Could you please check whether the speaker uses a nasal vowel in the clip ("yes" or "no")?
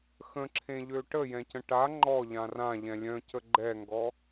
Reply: yes